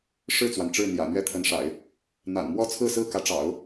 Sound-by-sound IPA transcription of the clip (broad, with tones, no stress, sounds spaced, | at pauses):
ʂ ɻ̩˥˩ t͡s w a˩ n ʈ͡ʂ ɻ̩˥˩ n̪ j ä̰˨˩ n̪ ɥ ɛ˥˩ t̪ʰ ə˧˥ n ʂ a̰˨˩˦ ɪ̯ | n̪ a̰˨˩ n m w ɔ˥˧ t͡sʰ ɹ̩˥˧ s ɹ̩˥˩ k ä˧˥ ʈ͡ʂ ɑ̰˨˩˦ ʊ̯